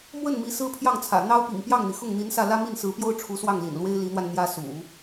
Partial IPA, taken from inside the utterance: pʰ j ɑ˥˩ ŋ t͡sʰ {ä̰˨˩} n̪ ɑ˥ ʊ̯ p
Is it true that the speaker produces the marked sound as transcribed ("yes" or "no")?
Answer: yes